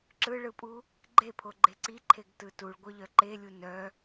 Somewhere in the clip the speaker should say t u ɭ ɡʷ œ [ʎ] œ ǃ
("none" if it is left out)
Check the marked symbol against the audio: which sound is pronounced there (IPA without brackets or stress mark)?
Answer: ʎ